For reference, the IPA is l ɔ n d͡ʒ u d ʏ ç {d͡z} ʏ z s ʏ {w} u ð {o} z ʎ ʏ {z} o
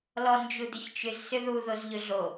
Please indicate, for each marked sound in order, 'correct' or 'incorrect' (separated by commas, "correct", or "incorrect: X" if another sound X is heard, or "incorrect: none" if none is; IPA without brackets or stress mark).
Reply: incorrect: t͡ʃ, incorrect: ð, correct, incorrect: ɮ